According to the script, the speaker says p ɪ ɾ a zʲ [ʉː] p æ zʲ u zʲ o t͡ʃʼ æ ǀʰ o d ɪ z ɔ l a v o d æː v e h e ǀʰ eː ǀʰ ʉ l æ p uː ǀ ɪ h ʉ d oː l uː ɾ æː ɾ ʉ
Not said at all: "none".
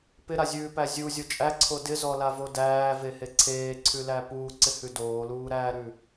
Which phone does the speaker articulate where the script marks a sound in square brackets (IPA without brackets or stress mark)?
ʉː